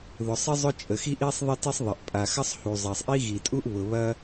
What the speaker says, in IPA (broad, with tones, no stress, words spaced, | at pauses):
ðʊ˩sˤɪ˥ zˤʊ˥t͡ʃʼə˩xi˥ʔi˥sˤ ðˤe˥ti˥sˤðˤɐ˩ʔ pʼa˩xɐ˥sˤ hu˩zˤa˩sˤʔi˥ ɣi˩tʼu˥ʔ βʊ˩βɐ˥